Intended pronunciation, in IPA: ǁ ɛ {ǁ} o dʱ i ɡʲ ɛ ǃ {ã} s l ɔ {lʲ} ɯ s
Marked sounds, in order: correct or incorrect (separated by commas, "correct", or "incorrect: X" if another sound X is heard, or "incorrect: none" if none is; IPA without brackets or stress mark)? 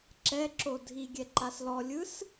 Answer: correct, incorrect: a, correct